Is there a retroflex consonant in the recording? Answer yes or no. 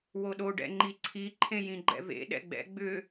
yes